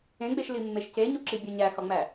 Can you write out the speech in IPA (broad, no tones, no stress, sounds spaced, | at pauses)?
ẽ ɡ͡b e ʃ l i mː e ʃ c e ɲ u ǁ i bʲ o ɲ æ x ɒ ŋ͡m æ